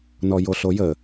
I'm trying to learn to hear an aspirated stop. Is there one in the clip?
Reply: no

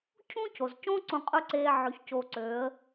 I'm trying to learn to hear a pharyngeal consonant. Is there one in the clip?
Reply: yes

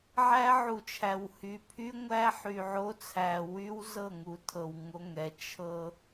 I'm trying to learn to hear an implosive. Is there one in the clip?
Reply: no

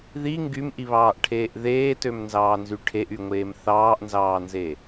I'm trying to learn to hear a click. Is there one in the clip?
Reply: no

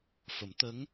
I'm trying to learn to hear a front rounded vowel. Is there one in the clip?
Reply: no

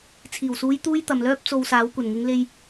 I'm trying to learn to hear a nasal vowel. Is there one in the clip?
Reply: no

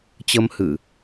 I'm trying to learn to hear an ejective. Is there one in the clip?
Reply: no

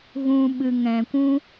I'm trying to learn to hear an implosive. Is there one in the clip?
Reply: yes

